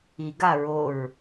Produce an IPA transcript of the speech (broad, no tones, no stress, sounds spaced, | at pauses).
i ɡ a ɹ o ɹ